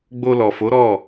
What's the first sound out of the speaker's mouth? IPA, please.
ɡ͡b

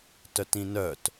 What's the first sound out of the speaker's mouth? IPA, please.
t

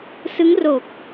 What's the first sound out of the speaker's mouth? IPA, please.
s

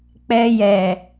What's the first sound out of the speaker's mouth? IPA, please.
k͡p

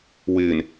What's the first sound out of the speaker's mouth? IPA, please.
w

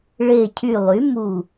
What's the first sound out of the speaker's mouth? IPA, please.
ɭ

